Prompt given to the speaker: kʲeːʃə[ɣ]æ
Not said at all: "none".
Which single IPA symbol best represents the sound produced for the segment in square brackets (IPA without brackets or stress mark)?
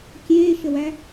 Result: w